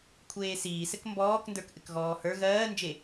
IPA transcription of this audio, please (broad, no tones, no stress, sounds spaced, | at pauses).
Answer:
kʷʰ eː s iː s ɘ k m b ɔː k n d ə˞ k ʔ ɘ k ɣ ɔː h ə˞ ɣ ɜː n d͡ʒ e